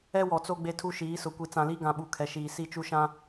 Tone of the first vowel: high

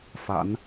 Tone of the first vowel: low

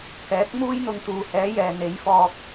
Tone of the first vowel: rising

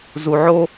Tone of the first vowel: low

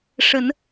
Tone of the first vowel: rising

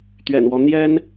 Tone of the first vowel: low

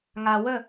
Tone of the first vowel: low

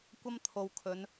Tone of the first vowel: high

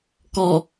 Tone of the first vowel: low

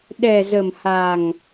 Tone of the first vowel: low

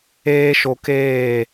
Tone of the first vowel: high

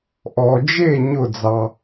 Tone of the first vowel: low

